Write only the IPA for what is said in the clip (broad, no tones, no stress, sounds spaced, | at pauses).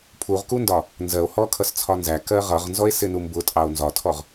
pʰ u ʁ k u n d ɒ | n z ɜ o̯ h ɔ kʰ ʌ s t͡sʰ ɒ n z æ k ɜ ʁ ʌ ʁ n z ɔ e̯ s ɪ n u m b ʊ tʼ ɑ o̯ n z ɒ tʰ ɔ ʁ